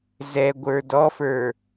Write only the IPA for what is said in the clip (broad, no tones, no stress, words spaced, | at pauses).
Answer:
zɛɡʷə˞ dɔfə˞